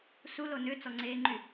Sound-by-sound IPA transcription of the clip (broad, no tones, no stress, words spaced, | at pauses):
sulo nøt͡sɔŋ͡ǀeːŋ͡ǃy